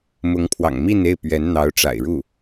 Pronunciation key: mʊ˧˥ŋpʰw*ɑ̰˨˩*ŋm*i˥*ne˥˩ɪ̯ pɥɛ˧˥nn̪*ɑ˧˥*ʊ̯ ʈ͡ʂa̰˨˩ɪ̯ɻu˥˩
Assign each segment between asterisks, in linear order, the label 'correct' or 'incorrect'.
correct, incorrect: i˥˧, correct

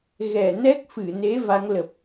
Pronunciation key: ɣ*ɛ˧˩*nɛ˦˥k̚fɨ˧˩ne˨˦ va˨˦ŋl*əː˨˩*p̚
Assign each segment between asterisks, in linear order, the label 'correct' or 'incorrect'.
correct, incorrect: ə˨˩

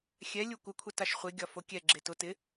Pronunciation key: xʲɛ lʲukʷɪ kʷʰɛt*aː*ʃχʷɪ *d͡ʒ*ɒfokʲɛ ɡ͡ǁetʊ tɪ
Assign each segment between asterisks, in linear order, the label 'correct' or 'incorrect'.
incorrect: a, incorrect: ɡʲ

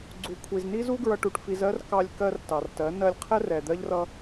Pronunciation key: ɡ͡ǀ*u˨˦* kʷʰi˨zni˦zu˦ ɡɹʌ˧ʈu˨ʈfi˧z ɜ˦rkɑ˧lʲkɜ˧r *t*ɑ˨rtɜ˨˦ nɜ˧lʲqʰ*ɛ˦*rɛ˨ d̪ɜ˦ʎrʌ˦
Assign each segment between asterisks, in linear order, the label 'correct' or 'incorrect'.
incorrect: u˨, correct, correct

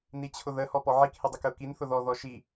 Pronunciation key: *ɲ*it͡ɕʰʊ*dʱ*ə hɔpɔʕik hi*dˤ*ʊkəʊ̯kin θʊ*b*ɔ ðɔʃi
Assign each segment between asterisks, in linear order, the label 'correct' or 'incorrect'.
incorrect: n, incorrect: ð, correct, incorrect: ð

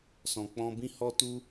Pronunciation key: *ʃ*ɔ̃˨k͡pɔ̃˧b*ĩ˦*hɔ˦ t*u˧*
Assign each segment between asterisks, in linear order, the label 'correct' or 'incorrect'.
incorrect: s, correct, correct

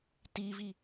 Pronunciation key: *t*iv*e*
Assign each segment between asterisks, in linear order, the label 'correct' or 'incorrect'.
correct, incorrect: i

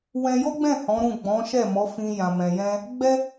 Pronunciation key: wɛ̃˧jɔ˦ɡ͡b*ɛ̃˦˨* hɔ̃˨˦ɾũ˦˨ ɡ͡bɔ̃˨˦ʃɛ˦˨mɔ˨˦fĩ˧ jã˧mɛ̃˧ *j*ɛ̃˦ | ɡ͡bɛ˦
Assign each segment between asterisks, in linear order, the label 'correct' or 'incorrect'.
correct, correct

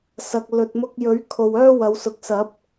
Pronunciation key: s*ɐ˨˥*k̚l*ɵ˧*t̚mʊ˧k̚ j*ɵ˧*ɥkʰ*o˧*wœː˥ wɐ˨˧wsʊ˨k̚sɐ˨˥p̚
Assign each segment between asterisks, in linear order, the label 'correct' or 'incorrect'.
incorrect: ɐ˨, incorrect: ɵ˨, incorrect: ɵ˨˥, incorrect: o˨

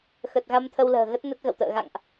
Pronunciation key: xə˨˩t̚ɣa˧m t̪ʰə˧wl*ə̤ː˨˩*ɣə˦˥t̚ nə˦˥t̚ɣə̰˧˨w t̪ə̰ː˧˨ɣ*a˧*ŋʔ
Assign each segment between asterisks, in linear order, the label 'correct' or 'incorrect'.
correct, incorrect: a̰˧˨

